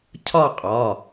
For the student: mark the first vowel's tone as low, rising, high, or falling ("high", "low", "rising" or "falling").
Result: falling